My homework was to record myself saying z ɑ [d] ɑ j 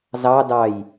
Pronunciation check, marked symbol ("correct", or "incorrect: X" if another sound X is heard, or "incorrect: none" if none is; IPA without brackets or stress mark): correct